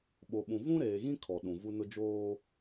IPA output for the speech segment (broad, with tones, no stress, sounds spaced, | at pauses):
ɓ o˨ ɓ ũ˨ v ũ˦ ɾ eː˨ ɣ ĩ˦ kʰ ɔ˨ ɗ ũ˨ v u˦ n ʊ˦ d͡ʒ oː˦